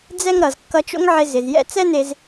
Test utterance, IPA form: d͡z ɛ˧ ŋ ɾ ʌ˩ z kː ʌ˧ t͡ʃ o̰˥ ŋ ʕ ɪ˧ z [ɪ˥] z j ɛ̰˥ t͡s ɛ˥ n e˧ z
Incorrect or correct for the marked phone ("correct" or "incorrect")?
incorrect